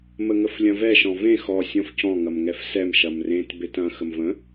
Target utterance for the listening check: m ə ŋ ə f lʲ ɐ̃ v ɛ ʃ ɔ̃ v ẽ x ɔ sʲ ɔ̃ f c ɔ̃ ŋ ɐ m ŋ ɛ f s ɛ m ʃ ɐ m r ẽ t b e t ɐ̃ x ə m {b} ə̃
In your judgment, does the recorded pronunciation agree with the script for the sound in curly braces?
no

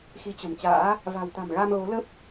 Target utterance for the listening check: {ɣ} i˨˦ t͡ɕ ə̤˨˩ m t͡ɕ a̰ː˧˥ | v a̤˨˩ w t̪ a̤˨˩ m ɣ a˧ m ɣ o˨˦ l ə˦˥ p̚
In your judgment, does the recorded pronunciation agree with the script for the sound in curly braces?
no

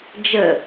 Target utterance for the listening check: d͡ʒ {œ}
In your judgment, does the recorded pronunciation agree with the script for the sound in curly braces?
no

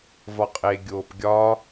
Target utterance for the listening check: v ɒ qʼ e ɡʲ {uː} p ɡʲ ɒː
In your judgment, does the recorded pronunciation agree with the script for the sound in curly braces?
no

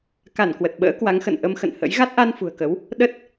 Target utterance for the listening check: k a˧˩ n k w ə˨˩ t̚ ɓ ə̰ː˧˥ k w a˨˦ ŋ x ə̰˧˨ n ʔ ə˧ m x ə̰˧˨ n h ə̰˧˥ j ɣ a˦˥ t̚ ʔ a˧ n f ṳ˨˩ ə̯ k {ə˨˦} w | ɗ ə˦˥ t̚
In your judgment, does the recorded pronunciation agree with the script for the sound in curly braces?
yes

